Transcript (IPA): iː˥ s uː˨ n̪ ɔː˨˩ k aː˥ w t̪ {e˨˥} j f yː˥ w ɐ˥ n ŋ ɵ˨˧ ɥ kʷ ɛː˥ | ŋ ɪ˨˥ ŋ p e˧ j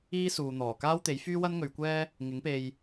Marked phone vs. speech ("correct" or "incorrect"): correct